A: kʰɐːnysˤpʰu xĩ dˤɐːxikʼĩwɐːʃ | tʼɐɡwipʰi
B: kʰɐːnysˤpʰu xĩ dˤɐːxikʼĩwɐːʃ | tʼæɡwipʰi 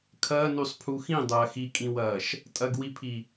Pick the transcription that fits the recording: A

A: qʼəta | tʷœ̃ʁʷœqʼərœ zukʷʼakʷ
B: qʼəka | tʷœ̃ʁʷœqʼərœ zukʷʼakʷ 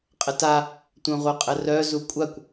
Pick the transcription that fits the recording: A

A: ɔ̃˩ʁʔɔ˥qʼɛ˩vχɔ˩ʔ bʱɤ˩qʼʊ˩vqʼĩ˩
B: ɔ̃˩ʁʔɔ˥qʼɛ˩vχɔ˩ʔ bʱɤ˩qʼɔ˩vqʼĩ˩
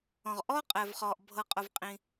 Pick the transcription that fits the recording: A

